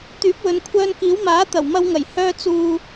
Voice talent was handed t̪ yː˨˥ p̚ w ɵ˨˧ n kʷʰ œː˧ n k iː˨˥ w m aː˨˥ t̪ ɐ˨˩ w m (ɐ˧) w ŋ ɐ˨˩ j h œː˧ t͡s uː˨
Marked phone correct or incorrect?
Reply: correct